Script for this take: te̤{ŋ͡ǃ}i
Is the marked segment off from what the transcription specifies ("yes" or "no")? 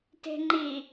no